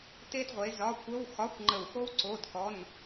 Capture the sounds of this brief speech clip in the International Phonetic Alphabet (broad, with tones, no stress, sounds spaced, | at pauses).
t e˥ d ʁʷ e˨˥ z ɒ˧˥˧ kʷ ə˧˥˧ w x ɒ˧˥˧ kʷ ŋ͡ǃ ə˧˩ w x o˥ w ǀ o˧˥˧ d k ɔ˧˥˧ n